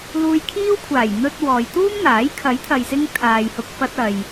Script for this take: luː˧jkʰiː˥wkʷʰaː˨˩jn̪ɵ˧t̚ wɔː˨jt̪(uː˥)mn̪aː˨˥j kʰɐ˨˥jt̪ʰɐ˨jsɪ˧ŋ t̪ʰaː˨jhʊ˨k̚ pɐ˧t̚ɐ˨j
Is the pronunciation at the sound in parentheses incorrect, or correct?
correct